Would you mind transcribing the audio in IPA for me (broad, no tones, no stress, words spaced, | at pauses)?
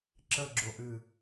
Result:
ǁəɡ͡ǁoʔɨ